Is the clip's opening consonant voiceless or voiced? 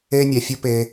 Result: voiced